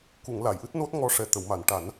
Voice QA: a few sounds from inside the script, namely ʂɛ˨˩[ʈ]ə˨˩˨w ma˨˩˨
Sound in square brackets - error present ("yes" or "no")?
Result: yes